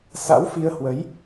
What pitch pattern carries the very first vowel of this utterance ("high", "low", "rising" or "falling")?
rising